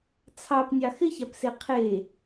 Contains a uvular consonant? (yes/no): yes